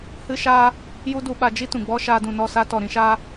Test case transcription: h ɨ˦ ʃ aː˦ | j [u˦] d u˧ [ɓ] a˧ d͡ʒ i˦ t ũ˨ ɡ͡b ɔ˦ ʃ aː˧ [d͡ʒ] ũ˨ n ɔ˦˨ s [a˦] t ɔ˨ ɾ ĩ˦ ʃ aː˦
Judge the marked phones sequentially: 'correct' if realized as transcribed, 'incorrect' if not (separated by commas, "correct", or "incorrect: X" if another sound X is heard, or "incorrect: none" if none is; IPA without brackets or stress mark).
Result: correct, correct, incorrect: d, correct